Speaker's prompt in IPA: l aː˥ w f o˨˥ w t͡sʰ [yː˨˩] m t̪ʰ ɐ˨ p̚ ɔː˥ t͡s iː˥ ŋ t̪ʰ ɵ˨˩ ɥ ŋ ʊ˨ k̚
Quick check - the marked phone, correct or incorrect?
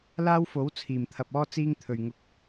incorrect